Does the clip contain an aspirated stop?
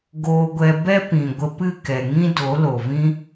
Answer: no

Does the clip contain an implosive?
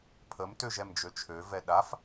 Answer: yes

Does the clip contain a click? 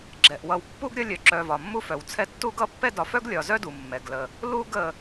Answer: yes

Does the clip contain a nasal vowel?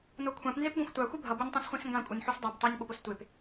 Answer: yes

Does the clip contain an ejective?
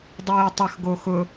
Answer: no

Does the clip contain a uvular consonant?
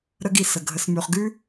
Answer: yes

